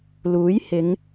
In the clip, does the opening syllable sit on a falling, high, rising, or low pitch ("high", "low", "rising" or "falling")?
rising